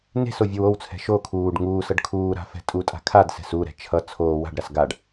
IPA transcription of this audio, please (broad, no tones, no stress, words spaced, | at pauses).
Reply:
ne̤sovʲow owt͡sʰɛ̤ ʃo kʰuːɖ ŋuːsʌɖ kʰuːɾa̤fɛ̤ tʼutʼa̤ kʰadsɛ̤s uɾɛ̤ t͡ʃʰʌ t͡sʰoː wa̤ɖɾas ɡaɖ